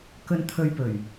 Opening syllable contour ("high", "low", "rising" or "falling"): low